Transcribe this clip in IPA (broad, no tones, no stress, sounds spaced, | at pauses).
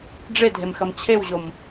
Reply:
ɖ͡ʐ e dʱ e m x ɐ m t͡ɕʰ e w ʑ o m